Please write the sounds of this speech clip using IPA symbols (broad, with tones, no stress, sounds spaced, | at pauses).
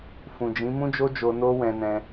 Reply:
f ũ˨ d͡ʒ ĩ˨˦ m ũ˦ d͡ʒ o˦ d͡ʒ o˧ n o˦ w ɛ̃˧ n ɛ̃˧